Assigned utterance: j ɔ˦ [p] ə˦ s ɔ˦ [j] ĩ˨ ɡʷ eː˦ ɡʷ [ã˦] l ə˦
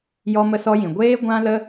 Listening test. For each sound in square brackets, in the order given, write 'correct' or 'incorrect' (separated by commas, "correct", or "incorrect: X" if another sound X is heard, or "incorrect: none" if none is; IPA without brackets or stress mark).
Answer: incorrect: m, correct, correct